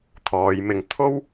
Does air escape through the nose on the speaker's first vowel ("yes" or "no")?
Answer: no